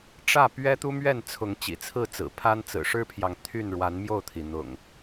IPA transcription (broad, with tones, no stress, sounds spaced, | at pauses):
ʈ͡ʂ ä˥˨ p ɥ ɛ˦ t̪ u˦ m ɥ ɛ˥˨ n t͡sʰ ʊ˨˦ ŋ t͡ɕ ḭ˨˩ t͡sʰ ɹ̩˥˨ t͡s ɹ̩˨˩ pʰ a˦ n t͡s ɹ̩˨˩ ʂ ɻ̩˦ pʰ j ɑ˨ ŋ t̪ʰ y˥˨ n ɻ w a˨˦ n m j o˥˨ ʊ̯ t̪ʰ i˩ n̪ ʊ̰˨˩ ŋ